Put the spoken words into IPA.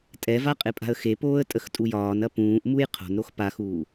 tʼ ɛ v a qʼ e pʼ a̤ ə̯ x e p oː ə̯ tʼ ə x tʼ u j ɒː n ɐ p ũː ʔ m u j qʰ o̤ n ɾ o x p a x uː

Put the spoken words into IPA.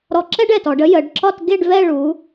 ɾ ɔ˧ ǁ ɛ˥ ɖ ɛ˧˩ t ɔ˩˧ ɖ ə˥ j ə˩˧ ɖ ǁ ɒ˥˧ t ɡ e˥˧ ɖ v ɛ˥˧ ɭ u˩˧

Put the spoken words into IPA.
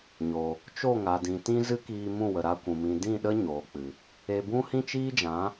ɲ o˨ | t͡ʃ o˦˨ ŋ a˨ d ĩ˨ t ĩ˦ z ɨ˦ k iː˧ m ũ˦˨ w ə˨ ɾ a˧ kʷ ũ˨ m ĩ˨ d ĩ˦˨ ɗ ə˦ ɲ oː˨ k͡p ɨ˨ | e˧ b ũ˦ h ĩ˦ t͡ʃ iː˦ d͡ʒ ã˨˦

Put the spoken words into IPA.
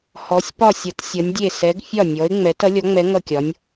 h ɔ˩˧ sʲ p ɒ˧˩ sʲ ʌ˩˧ t sʲ ʌ˩˧ nʲ dʲ e˧˩ s ɛ˩˧ ɡ fʲ ɒ˧˩ nʲ ɔ˩˧ ɪ̯ ŋ͡m ɛ˩˧ t ʌ˩˧ lʲ ɔ˩˧ ŋ͡m ɛ˩˧ ŋ ʌ˧˩ kʲ ɒ˩˧ nʲ

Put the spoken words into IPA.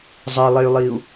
zˤ ɛ lˠ e y̯ lˠ iː u̯

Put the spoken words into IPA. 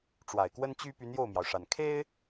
ʈ͡ʂ w a˨˩ ɪ̯ k w ə˥ n t͡ɕ y˥ p y˧˥ n j o˥˩ ʊ̯ m j ɑ˩ ʊ̯ ʂ a˨˩ n kʰ e˥ ɪ̯

